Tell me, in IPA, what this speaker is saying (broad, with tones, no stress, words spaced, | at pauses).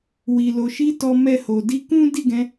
wi˨lo˨ʃi˧ tɔ˨mɛ˨ ho˨di˧ kũ˦di˦˨ɡɛ̃˧